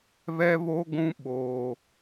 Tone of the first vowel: high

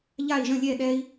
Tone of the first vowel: falling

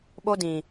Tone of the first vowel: high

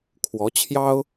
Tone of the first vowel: rising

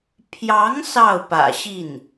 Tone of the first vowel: rising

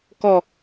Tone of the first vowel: low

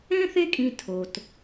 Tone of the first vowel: high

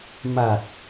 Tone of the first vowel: low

